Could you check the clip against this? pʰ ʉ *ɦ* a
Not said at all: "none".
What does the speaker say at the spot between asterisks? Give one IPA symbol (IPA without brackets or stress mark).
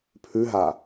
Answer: ɦ